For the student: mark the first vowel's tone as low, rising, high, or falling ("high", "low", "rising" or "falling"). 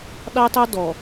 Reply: high